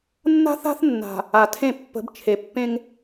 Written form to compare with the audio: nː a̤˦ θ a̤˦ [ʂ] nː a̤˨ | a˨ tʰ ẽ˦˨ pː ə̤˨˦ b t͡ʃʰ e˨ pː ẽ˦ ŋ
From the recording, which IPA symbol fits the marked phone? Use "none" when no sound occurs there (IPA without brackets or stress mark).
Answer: θ